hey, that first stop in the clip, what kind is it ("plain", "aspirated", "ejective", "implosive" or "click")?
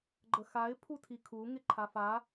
click